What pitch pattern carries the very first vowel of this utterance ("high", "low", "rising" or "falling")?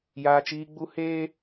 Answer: high